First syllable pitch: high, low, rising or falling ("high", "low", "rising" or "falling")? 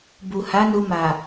low